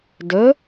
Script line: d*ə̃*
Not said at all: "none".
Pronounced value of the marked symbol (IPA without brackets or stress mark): ə